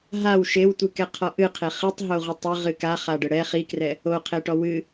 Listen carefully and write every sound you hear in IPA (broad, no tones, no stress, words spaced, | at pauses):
ɦaw ʃewtʷɨkɛqʰɔ ʔɨqʰe χɨtˤɦoʁʷi tˤɘʁɨ kaχaɖɘ ɽɛ χikrɛ | oqʰeʈɔ wɨ